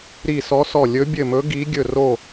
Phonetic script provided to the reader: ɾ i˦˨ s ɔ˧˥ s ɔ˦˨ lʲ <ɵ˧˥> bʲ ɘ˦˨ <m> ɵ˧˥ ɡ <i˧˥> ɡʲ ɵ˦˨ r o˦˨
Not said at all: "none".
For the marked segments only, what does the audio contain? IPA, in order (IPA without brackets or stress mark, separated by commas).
ɵ˧˥, m, i˧˥